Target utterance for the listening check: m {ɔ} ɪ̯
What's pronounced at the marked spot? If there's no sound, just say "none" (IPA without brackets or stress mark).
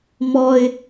ɔ